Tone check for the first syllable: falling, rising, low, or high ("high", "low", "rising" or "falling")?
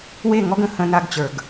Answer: falling